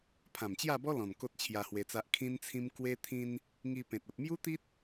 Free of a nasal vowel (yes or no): no